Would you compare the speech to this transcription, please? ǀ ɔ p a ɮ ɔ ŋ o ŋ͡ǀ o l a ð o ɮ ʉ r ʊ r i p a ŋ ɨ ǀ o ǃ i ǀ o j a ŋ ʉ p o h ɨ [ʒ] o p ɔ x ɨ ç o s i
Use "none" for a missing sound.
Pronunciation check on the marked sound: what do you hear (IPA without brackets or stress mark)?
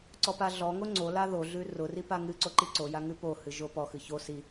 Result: ʒ